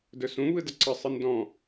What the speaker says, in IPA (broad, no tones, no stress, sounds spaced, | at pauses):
d ɵ s ũ β ɯ d ə ǀ ə sˤ ɯ n d ɔ̃